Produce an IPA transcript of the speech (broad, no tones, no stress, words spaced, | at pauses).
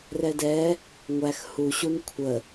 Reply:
rɛdɛ | ŋʷæx huɕun kʷʰə